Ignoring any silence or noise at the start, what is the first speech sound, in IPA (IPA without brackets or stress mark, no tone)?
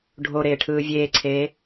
ɖʱ